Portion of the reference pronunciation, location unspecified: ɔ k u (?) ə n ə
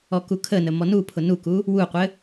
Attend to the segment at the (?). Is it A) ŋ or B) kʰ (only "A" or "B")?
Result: B